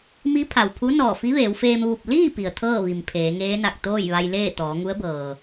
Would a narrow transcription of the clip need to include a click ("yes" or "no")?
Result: no